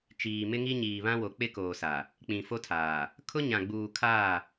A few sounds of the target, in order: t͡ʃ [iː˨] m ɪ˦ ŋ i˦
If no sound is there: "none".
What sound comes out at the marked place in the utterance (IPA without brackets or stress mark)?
iː˨